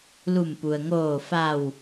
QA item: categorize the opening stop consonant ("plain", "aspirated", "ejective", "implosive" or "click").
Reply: plain